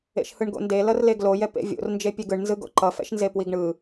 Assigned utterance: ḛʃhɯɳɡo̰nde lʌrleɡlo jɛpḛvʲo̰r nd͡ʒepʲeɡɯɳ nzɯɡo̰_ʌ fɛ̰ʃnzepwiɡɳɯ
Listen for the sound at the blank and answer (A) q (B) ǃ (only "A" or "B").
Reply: B